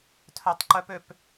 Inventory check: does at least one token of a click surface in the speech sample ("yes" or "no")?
yes